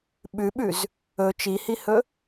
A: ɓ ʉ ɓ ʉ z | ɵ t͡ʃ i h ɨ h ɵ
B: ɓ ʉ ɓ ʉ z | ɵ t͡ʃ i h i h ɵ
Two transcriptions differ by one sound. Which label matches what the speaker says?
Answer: B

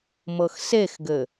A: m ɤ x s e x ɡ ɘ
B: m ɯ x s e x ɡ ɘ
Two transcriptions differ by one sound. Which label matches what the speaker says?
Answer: A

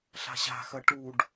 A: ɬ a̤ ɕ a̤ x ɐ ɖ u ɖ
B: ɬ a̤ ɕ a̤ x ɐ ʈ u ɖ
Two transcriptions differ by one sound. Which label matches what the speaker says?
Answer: B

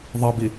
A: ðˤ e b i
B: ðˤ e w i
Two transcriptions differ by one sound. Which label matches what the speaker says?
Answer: A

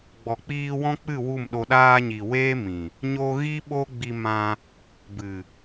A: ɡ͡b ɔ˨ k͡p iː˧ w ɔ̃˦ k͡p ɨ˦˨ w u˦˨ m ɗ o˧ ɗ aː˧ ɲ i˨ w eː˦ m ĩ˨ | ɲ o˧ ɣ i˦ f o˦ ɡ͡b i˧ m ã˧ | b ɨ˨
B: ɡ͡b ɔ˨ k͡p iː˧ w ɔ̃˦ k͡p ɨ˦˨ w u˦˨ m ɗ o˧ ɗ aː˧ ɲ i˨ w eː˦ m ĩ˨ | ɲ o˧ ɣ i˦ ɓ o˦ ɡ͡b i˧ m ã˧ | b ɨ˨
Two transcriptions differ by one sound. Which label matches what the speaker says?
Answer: B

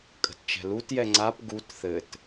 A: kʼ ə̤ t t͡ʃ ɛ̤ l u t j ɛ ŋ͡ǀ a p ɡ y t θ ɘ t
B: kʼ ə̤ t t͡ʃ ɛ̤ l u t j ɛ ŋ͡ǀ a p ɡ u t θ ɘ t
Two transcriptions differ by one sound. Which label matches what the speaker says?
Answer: B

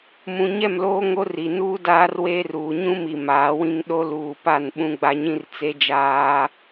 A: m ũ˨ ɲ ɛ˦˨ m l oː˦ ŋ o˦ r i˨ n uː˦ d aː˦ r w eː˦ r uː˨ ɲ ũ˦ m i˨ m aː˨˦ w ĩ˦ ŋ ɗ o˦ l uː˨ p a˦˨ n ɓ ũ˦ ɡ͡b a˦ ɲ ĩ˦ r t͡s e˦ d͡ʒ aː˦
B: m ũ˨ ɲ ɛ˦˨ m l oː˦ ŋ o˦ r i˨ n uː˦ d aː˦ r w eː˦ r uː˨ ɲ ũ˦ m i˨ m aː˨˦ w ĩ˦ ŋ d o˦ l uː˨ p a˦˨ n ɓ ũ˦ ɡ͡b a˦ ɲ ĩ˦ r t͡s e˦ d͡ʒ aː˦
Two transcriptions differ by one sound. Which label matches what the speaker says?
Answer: A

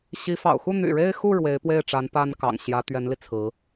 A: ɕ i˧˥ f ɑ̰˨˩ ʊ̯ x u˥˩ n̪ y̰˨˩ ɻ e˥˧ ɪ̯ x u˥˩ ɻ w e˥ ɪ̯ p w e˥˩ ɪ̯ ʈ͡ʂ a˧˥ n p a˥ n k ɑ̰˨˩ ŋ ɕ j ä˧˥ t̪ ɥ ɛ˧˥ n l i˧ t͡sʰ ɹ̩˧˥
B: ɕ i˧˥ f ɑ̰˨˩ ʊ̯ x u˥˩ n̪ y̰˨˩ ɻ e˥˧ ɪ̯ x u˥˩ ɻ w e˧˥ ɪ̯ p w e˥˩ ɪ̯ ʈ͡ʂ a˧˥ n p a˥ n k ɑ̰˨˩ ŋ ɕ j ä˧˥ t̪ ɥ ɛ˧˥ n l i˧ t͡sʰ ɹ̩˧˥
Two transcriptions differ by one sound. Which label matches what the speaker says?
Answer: B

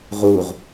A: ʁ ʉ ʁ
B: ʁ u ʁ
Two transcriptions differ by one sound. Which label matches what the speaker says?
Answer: B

